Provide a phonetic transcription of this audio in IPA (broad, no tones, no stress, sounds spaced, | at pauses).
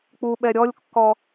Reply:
k͡p u ɓ ɛ ɾʲ ɔ lʲ kː ɔ